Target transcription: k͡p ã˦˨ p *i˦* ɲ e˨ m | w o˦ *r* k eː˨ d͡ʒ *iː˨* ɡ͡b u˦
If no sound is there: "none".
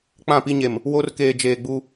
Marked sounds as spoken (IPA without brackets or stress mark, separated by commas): i˦, r, eː˨